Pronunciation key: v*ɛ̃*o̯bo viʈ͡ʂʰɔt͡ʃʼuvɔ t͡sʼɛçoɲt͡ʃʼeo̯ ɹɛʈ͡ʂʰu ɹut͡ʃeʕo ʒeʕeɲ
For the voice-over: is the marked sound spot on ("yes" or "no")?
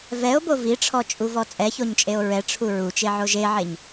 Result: no